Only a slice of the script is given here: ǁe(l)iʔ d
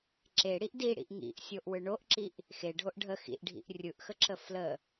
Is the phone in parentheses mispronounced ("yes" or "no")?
yes